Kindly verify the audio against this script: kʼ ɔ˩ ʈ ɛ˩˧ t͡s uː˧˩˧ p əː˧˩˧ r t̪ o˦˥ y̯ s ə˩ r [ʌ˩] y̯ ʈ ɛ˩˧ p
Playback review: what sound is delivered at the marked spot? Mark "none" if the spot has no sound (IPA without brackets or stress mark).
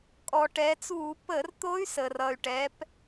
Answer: ʌ˩